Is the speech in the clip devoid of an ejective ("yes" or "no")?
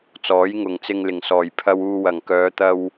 yes